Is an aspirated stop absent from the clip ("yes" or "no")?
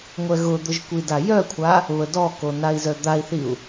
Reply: no